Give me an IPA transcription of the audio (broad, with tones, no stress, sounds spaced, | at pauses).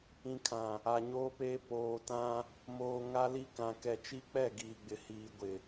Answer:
ĩ˨ kʰ ã˨ | a˨ ɲ oː˦ p eː˦ p oː˨ t ã˦ | m oː˨ ŋ a˦ l i˦ k ã˨ k ɛ˨ t͡ʃ i˦ k͡p ɛ˦˨ ɡ iː˨ ɡ͡b ɪ˨ h iː˨ ɡʷ ɪ˨